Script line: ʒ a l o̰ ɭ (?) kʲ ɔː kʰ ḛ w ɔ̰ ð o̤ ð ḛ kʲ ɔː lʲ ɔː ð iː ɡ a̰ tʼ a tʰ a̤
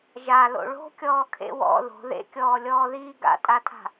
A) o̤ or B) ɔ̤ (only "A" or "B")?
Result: A